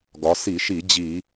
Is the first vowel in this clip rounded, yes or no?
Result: yes